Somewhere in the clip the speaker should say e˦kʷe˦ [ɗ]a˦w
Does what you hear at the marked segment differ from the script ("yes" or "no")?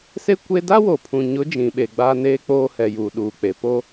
yes